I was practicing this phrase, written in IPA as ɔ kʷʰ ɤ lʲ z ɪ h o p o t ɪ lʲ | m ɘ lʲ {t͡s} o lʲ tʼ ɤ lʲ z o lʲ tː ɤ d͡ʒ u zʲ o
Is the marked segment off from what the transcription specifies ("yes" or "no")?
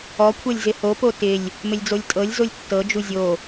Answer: yes